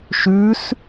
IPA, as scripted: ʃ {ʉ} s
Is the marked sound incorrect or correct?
correct